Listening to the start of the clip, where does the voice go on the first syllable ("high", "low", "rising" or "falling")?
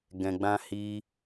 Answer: low